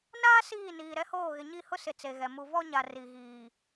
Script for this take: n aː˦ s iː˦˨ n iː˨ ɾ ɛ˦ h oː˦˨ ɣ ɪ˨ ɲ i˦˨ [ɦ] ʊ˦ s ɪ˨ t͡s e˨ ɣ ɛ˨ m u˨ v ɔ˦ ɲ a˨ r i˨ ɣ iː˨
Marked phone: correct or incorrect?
incorrect